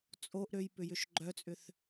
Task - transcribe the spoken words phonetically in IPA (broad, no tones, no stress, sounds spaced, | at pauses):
t͡sʼ o ʔ ɾ ø j p ʏ j ʏ ʃ ɡ͡ǃ œ t͡sʼ ʏ θ